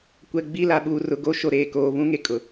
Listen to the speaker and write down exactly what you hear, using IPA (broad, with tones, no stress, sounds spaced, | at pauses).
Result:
kʷ ɛ˨ ɡ͡b i˦˨ l a˨ ɓ uː˨ r ʊ˨ ɡ o˦ ʃ o˨ ɾ eː˨ k oː˨ β ũ˦ ŋ e˨ kʼ ʊ˨